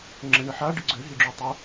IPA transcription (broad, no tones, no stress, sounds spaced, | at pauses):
ŋ͡ǁ ə ɳ ə ħ a ɖ ɪ ɡ͡ǀ ø ɦ i ɖ͡ʐ ø tˤ o